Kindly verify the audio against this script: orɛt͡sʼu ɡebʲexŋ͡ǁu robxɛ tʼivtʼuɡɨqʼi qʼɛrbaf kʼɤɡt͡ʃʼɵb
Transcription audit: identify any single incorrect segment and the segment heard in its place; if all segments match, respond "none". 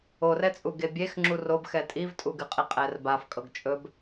none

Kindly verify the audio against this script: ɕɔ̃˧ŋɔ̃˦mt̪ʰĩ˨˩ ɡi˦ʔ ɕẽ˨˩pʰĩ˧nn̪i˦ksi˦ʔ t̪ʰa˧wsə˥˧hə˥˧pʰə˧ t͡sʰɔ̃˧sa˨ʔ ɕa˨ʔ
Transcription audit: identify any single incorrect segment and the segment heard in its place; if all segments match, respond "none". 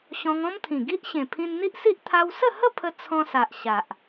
k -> ʔ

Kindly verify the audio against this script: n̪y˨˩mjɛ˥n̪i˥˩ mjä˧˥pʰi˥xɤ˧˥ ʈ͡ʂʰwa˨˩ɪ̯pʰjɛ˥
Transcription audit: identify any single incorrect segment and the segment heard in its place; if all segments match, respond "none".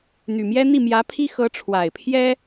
none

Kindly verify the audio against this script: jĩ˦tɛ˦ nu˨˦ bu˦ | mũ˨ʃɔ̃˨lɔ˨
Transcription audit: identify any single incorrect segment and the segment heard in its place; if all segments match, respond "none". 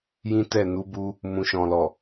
ɛ˦ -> ɛ˦˨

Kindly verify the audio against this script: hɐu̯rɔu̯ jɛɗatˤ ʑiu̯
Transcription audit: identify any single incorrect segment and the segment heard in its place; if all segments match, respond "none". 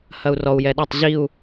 none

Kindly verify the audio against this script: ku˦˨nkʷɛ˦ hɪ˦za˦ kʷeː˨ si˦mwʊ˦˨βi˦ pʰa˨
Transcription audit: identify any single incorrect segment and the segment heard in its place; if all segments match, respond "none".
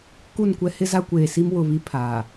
none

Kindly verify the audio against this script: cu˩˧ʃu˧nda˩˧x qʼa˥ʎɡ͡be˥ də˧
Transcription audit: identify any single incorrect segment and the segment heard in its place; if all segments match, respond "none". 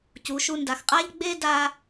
ə˧ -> a˧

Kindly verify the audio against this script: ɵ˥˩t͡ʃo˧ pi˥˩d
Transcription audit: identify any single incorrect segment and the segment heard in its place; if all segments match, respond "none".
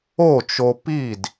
ɵ˥˩ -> o˥˩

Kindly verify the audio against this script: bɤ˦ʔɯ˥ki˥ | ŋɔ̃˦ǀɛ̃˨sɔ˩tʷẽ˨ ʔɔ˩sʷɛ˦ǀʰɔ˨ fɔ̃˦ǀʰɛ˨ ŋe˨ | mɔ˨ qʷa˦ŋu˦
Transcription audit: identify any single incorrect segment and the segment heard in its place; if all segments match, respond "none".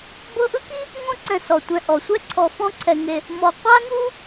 ẽ˨ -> ɛ̃˨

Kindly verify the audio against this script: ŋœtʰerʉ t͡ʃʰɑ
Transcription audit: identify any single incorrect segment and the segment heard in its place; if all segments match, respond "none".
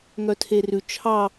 none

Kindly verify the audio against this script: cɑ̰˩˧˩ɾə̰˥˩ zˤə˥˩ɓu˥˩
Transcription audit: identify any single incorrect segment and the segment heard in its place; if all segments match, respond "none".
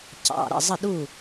ɓ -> ɗ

